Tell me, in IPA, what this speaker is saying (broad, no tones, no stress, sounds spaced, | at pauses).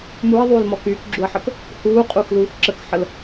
m u ɐ̯ ðˤ yː l m ɔ k yː k ɡ͡ǁ u ɐ̯ ħ ə k | h uː qʼ u x l uː x ǁ ə k ħ ə l